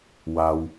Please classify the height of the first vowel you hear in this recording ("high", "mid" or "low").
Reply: low